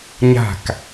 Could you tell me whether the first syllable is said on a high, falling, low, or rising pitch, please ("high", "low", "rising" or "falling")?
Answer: falling